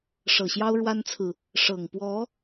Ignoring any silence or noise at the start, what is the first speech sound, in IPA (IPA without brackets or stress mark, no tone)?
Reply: ʂ